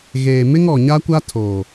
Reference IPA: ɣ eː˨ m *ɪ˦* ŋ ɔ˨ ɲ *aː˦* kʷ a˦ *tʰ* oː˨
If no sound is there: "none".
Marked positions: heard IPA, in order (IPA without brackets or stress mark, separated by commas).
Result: ɪ˦, a˦, tʰ